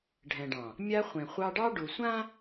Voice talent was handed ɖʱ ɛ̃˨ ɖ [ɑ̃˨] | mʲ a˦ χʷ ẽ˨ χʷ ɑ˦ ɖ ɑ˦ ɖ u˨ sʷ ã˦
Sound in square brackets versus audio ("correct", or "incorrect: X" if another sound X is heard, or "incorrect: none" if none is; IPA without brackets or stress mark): correct